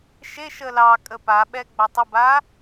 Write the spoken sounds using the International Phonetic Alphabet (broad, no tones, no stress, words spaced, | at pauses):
ʃeʃə lɑ kʼəpaɓɛ ɡ͡batˤəba